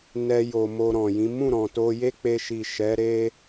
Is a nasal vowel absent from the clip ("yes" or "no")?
no